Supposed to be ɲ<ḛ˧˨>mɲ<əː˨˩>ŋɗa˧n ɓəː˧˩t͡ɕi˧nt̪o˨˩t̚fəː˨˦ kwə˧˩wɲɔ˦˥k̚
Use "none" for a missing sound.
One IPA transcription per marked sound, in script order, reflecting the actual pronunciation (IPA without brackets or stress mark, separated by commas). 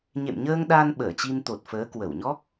ḛ˧˨, əː˧